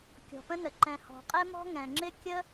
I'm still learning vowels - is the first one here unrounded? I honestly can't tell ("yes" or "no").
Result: no